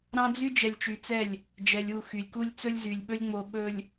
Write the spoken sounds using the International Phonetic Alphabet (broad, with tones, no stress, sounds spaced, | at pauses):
ɾ ɑ̃˦ d͡z y˦ d͡ʒ ɛ˨ lʲ t͡ʃ y˨ t͡s ɛ˦˨ lʲ | d͡ʒ ɛ˨ lʲ u˦˨ x y˨ lʲ k u˦ lʲ t͡s ɵ˦ lʲ z y˨ lʲ ɓ ɵ˦ lʲ ŋ͡m o˨ ɓ ɵ˨ lʲ